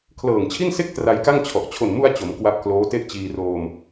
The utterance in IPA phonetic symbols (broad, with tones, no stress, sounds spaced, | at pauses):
kʰ l ɤː˨˩ ŋ t͡ɕʰ i˥˩ n s e˥˩ k̚ t r a˧ j k a˥˩ ŋ t͡ɕʰ ɔ˨˩ ʔ t͡ɕʰ o˨˩ n m u˧ a̯ t͡ɕ o˩˦ m k w a˦˥ p̚ k l oː˦˥ t e˥˩ ʔ t͡ɕ iː˧ r oː˧ m